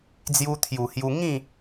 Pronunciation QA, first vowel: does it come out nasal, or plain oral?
oral